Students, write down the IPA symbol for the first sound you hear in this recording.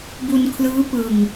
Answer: b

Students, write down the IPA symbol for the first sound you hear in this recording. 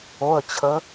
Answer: o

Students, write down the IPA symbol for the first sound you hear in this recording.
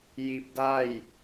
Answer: j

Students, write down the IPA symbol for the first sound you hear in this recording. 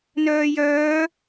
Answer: n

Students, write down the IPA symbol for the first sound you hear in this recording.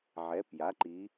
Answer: ʕ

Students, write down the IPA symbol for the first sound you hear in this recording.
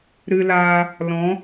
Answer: ɾ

